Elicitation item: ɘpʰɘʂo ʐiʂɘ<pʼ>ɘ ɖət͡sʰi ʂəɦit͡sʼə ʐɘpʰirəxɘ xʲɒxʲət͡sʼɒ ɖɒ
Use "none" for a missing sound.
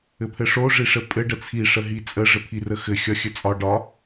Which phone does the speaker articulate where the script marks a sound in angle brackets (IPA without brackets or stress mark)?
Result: pʼ